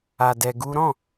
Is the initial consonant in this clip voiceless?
no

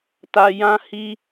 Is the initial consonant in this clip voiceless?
yes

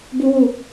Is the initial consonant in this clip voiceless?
no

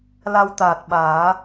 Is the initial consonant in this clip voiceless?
no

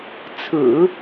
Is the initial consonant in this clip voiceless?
yes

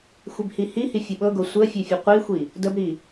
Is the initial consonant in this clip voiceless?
yes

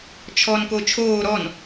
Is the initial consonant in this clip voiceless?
yes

